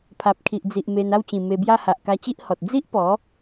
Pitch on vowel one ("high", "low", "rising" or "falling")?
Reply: low